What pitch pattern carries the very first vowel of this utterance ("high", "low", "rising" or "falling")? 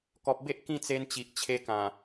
low